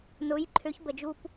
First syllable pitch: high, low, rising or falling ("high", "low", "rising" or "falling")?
rising